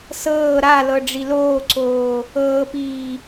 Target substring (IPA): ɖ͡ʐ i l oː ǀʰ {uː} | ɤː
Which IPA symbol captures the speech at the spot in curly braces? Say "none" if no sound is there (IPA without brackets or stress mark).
oː